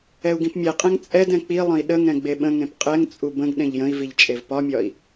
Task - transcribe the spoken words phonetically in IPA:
ɛ u̯ ɡ ĩ p mʲ ɛ qʼ ɛ̃ ŋ t͡sʼ ɛ d ɛ̃ k͡p i lˠ ə̃ i̯ ɗ ə ŋ ɛ̃ ɡ͡b e ɓ ə̃ ŋ ẽ p qʼ ɛ ŋ t͡sʼ u b ə̃ ɡ ɗ ẽ ʎ j ə̃ i̯ v i ʎ t͡ʃʼ e v p ɒ mʲ ɒ i̯

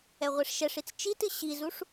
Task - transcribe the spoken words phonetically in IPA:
ɛ ʁʷ e ʂ ʃ ɛ ʂ i t͡s t͡ʃ i t ɨ ɕ i z u ʂ

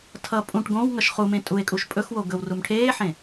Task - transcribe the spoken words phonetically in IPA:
tʰ ʌ pʼ ũ ʈ ɡ õ w ŋ ʌ ʃ χ u m ẽ tʼ u e̯ kʼ u ʃ pʼ ɵ x w o ɡ ɵ w r u m ʈʰ eː ħ ẽ

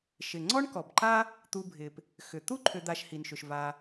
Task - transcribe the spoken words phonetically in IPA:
ʃ ɪ˩ ŋ͡ǀ ɔ˥ ɳ k ɔ˩ b ǃ a˥ | t̪ u˨ bʱ ɪ˩ p | x ʏ˩ t̪ u˥ ǃʰ ʏ˨ d̪ a˨ ʃ h i˩ n ʃ ʏ˩ ʃ v a˨

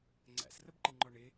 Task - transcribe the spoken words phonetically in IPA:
ŋ͡ǀ æ̰ s r ə b ǃ ɨ ŋ͡ǃ ɔ ɳ ɪ

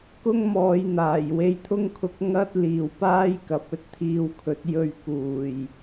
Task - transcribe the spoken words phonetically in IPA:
k ʊ˥ ŋ m ɔː˨˧ j n̪ aː˨˩ j w e˧ j t̪ʰ ʊ˥ ŋ kʰ ʊ˧ k̚ ŋ ɐ˥ t̚ l iː˨ w p aː˥ j k ɐ˨˥ p̚ ɵ˧ t̚ t̪ʰ iː˧ w kʰ ɵ˨˥ t̚ j ɵ˧ ɥ k uː˨˩ j

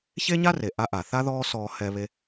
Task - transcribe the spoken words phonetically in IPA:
ç e˥ ɲ a˥ r e˩ ʔ a˧˥ ʔ a˩ θ a˥ ð ɔː˥ s ɔː˧ h ɛ˧ β e˧

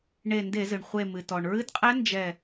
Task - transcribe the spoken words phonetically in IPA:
ɳ e˧˩ n d e˧˩˧ z ɨ˩ ɳ χʷ e˧˩ m ɨ˩ t ɔ˩ ɳ ɹ ɨ˧˥ d qʼ æ˧˥ n d͡ʒ ɛ˧˩

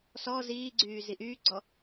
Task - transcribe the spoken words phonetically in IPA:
s ɔ z iː ɡ͡ǀ yː z i ʔ yː ɡ͡ǀ ɔ

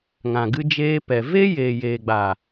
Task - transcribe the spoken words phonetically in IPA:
ŋ ã˨ ɡ ɨ˧ d͡ʒ eː˧ p ɛ˨ v e˦ j eː˨ j eː˨ ɡ͡b a˨

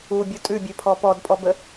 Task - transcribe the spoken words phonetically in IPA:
u bʲ u tʼ ʉ bʲ ø pʰ ɔ p ɔ d pʼ ɔ b ə

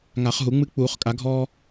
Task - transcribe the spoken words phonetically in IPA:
ŋ a˨˩˦ χ ɦ u˨˩˦ ŋ͡m ɨ˦ k͡p uː˨˩˦ χ kʼ a˨˩˦ ɡʱ ɔː˦

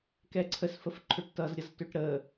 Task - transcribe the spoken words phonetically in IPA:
k ɛ ǀʰ ə s f ə f ǃʰ ø ʈ t ʌ z ɾʲ ʌ z t ø ʈ ɾ ə

